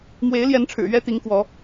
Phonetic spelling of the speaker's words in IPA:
m w e˨˦ ɪ̯ l j ɛ˨˦ n ʈ͡ʂʰ ɻ̩˨˩ ɥ ɛ˦ t̪ i˨˦ ŋ k w ɔ˨˦

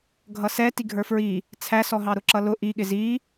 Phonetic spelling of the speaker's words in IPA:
ɡʱ ʌ s ɛ t i ɡʱ ə˞ f ɹ i | t͡sʰ æ s ɔ ɦ ɑ ɾ ʊ ǁ ʌ l ʊ ʔ i ɠ ɪ z i

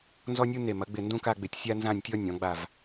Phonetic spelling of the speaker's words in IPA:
n z ɔ˥ nʲ u˥ n e˧˩ m ɐ˩˧ ɡ͡b ɪ˧˩ n d ũ˥˧ k a˥˧ ɡ͡b ɪ˧˩ tʲ sʲ a˥ n z ã˥˧ nʲ tʲ ɔ˥ nʲ ɔ̃˩˧ ɡ͡b a˧˩ v

